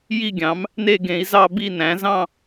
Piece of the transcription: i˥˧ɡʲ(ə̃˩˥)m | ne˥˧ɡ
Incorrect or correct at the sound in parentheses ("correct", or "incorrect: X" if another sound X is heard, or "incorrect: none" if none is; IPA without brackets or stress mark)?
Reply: incorrect: ɑ̃˩˥